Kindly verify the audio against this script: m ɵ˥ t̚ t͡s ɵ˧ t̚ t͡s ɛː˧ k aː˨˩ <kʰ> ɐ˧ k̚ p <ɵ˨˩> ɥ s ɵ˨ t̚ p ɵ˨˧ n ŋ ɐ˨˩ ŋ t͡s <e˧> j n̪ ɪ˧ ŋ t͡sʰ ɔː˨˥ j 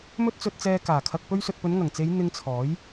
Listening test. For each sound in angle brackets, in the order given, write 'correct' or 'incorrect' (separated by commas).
correct, incorrect, incorrect